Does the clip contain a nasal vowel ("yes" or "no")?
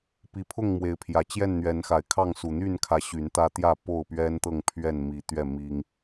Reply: no